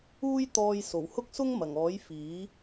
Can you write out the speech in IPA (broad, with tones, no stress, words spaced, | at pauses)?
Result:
uː˥j t̪ɔː˧jso˨˩w hʊ˥k̚sʊ˥ŋmɐ˨˩ŋɔː˨˥j fiː˨˥